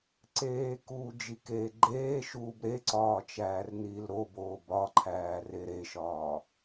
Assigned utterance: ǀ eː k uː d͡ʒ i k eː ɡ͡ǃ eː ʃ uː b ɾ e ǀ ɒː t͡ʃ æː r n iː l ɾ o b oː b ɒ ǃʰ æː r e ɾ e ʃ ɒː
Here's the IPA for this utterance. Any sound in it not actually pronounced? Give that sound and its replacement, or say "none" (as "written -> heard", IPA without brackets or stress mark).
none